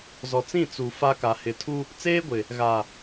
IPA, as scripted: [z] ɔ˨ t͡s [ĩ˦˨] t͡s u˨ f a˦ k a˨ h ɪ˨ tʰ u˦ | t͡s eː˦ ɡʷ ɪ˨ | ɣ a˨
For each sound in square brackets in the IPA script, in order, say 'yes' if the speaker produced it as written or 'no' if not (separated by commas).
yes, yes